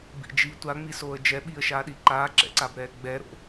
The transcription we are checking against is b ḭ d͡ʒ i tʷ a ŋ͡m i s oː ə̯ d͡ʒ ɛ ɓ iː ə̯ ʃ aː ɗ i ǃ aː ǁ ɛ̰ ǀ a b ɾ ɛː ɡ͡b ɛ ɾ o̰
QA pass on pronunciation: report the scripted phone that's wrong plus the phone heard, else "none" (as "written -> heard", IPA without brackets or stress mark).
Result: none